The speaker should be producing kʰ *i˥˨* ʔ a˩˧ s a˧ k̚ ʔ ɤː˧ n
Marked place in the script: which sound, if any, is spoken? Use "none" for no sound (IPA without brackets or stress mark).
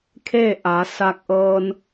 e˥˨